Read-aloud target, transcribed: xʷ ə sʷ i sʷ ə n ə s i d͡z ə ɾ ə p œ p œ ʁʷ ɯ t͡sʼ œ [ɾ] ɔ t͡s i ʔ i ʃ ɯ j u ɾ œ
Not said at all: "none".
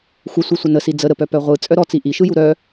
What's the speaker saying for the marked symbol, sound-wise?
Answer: ɾ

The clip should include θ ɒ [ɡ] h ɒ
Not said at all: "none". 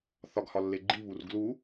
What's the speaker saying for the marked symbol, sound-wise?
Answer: ɡ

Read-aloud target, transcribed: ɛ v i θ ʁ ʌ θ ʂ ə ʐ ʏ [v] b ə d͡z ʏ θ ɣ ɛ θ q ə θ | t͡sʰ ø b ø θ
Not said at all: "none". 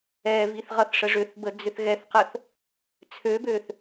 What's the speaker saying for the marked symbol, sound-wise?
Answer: θ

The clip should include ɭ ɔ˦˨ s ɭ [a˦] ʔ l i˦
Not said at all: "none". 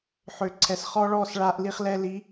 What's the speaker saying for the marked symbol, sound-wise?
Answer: a˦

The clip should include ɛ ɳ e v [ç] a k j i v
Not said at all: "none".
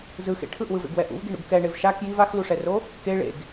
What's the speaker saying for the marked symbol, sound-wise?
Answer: ʃ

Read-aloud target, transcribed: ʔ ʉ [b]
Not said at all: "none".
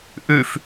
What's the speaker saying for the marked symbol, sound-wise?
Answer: f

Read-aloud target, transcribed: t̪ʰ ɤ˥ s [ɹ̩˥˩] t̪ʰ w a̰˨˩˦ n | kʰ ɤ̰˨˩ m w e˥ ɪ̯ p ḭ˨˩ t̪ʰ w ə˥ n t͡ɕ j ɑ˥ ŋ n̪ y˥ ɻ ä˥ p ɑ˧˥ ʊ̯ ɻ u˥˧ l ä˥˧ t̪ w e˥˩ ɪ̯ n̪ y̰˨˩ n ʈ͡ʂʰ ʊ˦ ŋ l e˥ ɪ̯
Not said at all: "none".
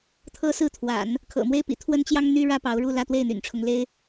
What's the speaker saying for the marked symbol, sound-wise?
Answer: ɹ̩˥˩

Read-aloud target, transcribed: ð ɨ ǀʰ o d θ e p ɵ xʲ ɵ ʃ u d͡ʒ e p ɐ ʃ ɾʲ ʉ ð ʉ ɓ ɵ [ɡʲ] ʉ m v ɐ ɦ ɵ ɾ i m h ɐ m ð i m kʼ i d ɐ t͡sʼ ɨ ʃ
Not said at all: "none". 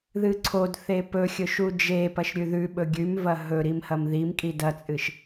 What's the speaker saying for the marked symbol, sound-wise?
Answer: ɡʲ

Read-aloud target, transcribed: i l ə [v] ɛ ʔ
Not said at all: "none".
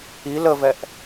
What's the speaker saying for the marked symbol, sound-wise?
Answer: v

